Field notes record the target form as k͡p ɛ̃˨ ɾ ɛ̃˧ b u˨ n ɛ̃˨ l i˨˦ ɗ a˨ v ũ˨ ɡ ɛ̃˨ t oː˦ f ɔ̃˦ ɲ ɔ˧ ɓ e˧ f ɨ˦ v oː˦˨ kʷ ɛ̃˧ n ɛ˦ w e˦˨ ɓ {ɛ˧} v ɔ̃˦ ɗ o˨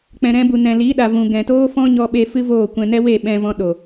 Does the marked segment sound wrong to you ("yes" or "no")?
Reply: yes